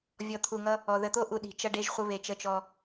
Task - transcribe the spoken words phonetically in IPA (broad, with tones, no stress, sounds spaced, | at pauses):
vʲ ɔ˨ t̪ʰ u˨ ŋ ʌ˦ | ɔ˨ ð ə˨ t̪ o˦ ʔ u˨ ɗ i̤˨ t͡ʃ ʌ˦ ɖ e˦ ʒ χʷ ə˦ β e˨ t͡ʃ ə˦ t͡ʃ ɔ˦